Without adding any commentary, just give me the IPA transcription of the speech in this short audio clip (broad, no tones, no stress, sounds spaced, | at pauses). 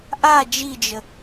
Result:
ʔ a d͡ʒ i d͡ʒ ə